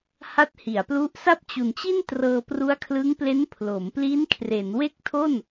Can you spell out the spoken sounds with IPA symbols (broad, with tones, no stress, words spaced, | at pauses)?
ha˦˥t̚hi˩˦a̯plu˦˥ʔ sa˥˩p̚t͡ɕu˨˩nt͡ɕi˥˩n trɤː˧pru˦˥a̯kʰlɯ˦˥ŋple˦˥n pʰlo˩˦m pli˦˥nkʰre˩˦n we˥˩k̚tʰo˥˩n